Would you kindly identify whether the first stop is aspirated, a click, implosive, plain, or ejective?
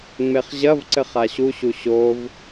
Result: click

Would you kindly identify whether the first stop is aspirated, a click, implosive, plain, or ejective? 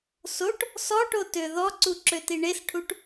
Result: plain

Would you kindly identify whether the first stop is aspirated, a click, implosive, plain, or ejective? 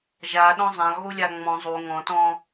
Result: implosive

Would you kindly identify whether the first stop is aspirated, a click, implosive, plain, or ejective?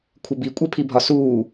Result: aspirated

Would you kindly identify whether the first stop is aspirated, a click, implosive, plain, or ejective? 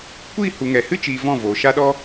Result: plain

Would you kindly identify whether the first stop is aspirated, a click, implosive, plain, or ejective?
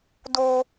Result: plain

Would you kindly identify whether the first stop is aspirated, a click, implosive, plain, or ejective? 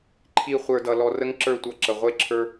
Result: click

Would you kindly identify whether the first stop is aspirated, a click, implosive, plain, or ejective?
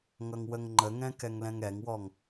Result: click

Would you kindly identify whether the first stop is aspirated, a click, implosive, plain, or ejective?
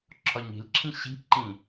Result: click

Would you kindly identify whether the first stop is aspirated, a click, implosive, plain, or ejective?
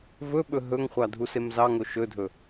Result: implosive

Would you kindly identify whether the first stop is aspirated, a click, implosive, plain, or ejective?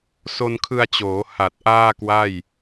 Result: aspirated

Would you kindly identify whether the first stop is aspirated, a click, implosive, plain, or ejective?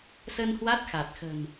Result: plain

